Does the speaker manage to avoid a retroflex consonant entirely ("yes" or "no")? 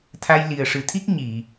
no